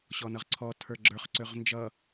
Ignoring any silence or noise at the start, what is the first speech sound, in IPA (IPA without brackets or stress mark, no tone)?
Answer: ɕ